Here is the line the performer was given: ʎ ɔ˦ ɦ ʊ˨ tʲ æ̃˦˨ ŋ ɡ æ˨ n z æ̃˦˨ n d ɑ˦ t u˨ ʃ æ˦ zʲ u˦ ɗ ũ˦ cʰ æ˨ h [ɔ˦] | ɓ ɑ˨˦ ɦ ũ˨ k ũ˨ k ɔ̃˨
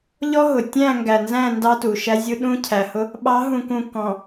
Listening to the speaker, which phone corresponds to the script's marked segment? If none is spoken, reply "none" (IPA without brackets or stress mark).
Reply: ʊ˦